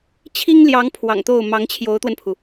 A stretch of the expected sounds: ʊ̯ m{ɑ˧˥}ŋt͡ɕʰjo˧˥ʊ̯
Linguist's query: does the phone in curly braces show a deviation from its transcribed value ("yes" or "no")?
no